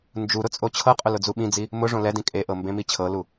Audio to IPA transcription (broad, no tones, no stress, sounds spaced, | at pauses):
n d͡ʒ u ɾ ʊ t͡sʼ o t͡ɕʰ ɤ qʼ ʊ l ʊ d͡z u ɓ ĩ d͡z i | m ʊ ʐ õ l ɛ d ĩ kʼ e ʔ ɤ m b ẽ m i t͡ɕʰ ɤ l u